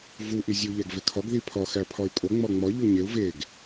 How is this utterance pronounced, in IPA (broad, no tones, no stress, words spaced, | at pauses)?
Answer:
vu ʔizʲu ʎæɡvekʰɒɡ ðipʰɒ xæpʰɒy̯kʼo ŋ͡mɒŋ͡mɒ ʎoɲeu̯ veɡ